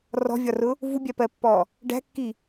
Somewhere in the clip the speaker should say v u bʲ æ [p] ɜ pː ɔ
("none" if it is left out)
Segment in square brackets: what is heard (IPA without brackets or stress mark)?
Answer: p